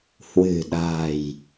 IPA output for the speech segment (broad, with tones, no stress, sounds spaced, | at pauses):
h w ɨ̤˨˩ ɗ a̤˨˩ j